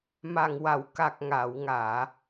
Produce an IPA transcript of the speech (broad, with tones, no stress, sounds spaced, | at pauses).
m a˨˩ ŋ w a˨˩˨ w k a˨˩ k̚ ŋ a˨˩˨ w ŋ aː˨˩˨